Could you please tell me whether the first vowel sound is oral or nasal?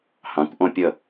nasal